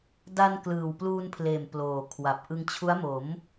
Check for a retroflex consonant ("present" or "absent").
absent